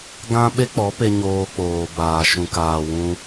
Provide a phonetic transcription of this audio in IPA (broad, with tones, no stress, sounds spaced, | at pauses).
ɡ ã˦ ɓ e˦ k͡p ɔ˨˦ p e˧ ɲ oː˧ k͡p oː˨ b aː˨ ʃ ũ˨ k aː˨ w ũ˧